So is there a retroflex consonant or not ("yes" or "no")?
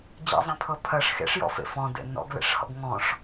yes